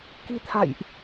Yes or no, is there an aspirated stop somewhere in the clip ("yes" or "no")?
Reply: yes